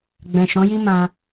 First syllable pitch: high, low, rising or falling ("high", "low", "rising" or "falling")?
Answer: low